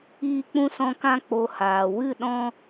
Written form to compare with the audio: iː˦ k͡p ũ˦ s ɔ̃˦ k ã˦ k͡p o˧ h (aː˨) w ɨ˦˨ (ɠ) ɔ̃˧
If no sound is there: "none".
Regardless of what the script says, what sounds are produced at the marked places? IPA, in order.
aː˨, ɗ

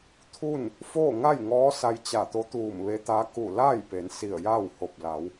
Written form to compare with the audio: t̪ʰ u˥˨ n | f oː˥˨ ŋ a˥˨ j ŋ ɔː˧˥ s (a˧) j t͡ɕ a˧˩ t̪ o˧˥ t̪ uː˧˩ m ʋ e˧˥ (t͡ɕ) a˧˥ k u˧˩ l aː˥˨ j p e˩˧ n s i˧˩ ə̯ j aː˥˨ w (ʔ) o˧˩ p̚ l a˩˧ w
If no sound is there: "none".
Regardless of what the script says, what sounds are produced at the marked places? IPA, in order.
a˧, t̪, h

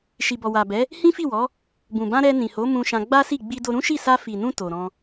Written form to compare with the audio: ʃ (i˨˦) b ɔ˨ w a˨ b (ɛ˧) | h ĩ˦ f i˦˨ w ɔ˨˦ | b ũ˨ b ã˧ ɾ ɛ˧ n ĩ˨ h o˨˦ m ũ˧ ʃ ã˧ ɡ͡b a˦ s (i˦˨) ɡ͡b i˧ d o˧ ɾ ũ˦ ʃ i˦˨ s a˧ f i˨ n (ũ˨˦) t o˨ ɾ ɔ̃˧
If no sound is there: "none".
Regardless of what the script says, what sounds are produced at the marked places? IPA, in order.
i˨, ɛ˨˦, i˦˨, ũ˧

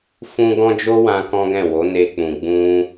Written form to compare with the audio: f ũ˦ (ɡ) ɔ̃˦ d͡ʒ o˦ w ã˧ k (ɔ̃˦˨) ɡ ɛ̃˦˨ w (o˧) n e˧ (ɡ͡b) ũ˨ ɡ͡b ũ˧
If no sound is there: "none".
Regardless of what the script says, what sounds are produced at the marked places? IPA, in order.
ɡ, ɔ̃˦, o˨˦, k͡p

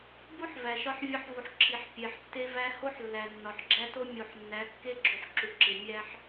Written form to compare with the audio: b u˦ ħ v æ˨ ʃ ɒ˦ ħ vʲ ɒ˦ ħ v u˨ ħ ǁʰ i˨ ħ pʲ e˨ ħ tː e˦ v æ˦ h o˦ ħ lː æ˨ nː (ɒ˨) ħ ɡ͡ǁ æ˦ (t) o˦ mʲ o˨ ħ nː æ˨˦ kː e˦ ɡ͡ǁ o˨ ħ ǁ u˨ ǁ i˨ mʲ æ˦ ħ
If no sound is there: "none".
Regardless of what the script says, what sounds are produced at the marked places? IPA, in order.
ɒ˨, t

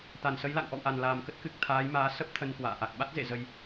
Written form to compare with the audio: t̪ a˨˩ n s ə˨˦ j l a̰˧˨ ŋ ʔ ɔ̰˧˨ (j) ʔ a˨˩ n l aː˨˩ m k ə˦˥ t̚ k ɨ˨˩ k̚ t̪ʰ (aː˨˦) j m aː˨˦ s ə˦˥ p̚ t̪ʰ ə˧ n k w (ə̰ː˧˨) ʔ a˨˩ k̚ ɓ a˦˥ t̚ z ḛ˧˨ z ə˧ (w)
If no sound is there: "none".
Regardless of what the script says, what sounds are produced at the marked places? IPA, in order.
w, aː˨˦, a̰ː˧˨, j

